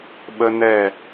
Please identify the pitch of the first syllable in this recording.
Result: high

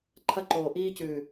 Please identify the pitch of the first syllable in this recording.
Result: high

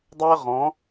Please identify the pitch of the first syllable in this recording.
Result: high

